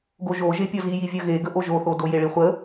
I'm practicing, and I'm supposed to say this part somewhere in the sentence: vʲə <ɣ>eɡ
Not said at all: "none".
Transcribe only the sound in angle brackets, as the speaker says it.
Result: ɣ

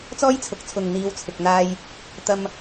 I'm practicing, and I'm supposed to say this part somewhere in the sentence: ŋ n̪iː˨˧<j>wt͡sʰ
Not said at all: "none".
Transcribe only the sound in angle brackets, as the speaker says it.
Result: none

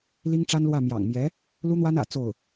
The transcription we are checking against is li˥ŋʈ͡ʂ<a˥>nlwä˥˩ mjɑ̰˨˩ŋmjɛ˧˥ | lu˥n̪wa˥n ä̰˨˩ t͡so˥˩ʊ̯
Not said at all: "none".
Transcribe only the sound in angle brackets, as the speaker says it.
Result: a˥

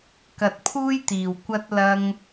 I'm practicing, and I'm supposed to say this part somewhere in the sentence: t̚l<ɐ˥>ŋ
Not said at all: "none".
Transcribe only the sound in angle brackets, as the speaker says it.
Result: ɐ˥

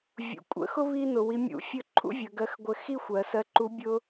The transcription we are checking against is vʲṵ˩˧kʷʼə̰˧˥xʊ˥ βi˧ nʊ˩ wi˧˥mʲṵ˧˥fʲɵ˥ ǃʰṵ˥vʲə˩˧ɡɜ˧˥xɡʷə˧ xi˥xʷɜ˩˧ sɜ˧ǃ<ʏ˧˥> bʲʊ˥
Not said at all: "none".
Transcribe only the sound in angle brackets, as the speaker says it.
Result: u˧˥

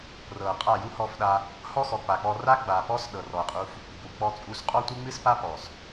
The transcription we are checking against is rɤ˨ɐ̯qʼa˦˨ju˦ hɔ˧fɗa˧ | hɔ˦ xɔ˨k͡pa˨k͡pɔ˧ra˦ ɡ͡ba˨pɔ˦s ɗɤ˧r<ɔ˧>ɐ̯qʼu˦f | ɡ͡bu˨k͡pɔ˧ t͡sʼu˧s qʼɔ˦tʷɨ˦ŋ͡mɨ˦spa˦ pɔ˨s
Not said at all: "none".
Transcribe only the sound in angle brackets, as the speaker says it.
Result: ɔ˧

